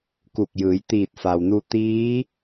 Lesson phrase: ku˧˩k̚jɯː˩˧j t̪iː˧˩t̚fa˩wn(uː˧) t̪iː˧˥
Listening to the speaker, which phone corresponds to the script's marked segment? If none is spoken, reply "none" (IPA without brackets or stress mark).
u˧